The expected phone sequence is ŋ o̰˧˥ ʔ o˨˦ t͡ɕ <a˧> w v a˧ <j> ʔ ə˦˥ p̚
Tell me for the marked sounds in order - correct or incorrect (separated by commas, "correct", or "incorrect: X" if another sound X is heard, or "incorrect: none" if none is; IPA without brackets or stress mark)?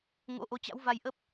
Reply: incorrect: a̰˧˥, correct